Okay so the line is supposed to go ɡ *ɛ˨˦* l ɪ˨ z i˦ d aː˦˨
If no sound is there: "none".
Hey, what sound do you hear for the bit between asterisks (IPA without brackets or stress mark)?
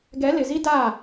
ɛ˨˦